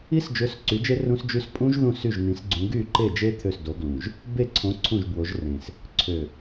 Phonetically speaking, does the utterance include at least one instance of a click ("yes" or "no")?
yes